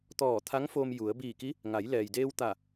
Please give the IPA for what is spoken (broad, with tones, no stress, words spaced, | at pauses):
t̪ɔː˧˩t̪ʰa˧˥ŋ fo˧mju˩˧ə̯ biː˧˩ki˧˥ | ŋa˩˧jlɛː˩jdeː˧w t̪a˧˩